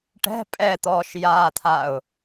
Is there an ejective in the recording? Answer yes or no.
yes